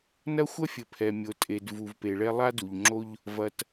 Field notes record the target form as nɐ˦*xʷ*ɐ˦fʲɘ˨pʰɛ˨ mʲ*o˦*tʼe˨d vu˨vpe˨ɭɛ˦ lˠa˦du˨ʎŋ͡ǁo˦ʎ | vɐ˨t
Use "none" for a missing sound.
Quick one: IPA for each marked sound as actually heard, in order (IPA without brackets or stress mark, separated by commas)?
xʷ, o˨